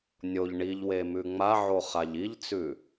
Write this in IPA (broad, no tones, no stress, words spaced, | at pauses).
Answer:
nʲoʎ ɳiʎwe mʉŋ͡maʕo χaʎiʎt͡sʉ